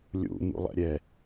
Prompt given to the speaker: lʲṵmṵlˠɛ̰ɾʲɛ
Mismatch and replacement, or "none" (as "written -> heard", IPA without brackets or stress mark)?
none